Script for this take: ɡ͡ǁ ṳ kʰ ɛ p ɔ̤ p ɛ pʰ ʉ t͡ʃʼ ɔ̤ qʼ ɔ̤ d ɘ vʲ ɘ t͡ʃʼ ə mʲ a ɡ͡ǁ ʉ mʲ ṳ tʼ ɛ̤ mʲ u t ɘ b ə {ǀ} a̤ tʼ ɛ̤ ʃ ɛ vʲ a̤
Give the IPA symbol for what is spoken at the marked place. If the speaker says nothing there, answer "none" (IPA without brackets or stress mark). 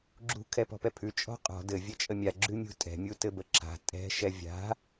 ǁ